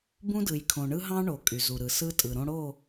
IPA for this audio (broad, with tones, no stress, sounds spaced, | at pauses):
b ũ˦ d ɯ˨ j kʰ õ˨ ɳ ɯ˦ ɦ ɑ̃˦ ɳ o˨ kʼ y˨ z u˨ ɾ ɯ˨ s ɯ˦ tʼ ɯ˨ ɾ õ˦ ɽ o˦˨